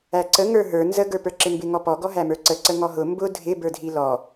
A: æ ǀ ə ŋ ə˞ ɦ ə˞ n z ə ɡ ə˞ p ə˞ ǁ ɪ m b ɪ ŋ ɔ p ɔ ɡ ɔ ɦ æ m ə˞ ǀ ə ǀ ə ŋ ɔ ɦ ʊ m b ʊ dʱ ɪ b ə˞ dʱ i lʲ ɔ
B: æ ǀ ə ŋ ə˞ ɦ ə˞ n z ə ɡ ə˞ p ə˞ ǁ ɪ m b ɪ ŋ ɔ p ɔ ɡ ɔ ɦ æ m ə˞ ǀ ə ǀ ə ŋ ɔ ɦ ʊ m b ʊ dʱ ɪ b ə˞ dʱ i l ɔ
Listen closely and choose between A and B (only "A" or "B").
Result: B